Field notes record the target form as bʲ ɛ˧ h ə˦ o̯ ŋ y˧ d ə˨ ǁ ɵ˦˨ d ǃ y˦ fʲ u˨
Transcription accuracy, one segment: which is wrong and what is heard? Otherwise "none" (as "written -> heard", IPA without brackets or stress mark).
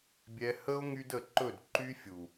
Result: ǁ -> ǃ